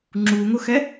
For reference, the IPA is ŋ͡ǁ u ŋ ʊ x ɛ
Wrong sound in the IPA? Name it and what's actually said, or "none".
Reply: none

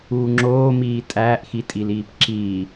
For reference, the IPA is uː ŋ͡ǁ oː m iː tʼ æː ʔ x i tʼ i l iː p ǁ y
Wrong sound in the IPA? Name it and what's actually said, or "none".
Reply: y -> i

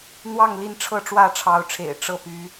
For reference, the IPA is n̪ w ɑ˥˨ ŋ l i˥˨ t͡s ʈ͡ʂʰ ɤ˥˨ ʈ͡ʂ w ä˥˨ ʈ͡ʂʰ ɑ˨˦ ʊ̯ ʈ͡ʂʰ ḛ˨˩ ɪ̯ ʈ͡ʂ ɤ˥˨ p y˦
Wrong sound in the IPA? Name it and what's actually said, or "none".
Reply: t͡s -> n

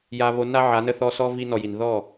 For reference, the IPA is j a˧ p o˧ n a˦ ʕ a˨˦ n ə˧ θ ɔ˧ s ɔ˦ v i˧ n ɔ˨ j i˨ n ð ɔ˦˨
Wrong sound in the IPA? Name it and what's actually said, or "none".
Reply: p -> β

